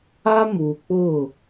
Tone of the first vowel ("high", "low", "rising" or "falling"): high